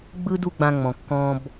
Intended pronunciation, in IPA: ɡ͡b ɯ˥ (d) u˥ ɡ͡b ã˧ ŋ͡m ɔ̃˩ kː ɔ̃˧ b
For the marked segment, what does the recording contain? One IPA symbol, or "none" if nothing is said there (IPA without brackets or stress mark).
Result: d